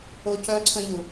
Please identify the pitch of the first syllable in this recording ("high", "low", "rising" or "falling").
high